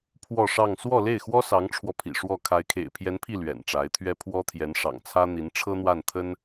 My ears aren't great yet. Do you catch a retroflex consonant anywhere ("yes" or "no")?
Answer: yes